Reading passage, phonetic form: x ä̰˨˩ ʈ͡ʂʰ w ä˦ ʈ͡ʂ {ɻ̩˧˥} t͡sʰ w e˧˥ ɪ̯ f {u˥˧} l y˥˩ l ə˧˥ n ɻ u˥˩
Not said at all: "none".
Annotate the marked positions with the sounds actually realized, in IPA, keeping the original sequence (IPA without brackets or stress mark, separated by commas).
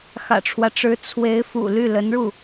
ɻ̩˧˥, ṵ˨˩